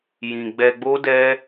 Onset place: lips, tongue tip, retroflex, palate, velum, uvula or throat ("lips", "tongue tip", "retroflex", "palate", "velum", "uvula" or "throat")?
palate